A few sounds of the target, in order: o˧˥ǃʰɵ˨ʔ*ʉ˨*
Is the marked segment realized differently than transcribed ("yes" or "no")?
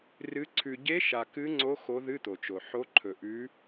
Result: yes